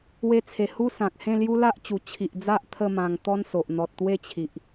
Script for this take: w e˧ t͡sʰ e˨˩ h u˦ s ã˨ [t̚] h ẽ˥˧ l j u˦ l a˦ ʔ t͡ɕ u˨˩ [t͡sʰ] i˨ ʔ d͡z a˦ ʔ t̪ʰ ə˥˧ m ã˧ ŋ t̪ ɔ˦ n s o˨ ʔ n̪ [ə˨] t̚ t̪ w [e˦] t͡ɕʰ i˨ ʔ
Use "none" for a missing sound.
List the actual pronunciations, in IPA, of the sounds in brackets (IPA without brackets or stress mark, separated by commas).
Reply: k̚, t͡ɕʰ, ɔ˨, e˥˧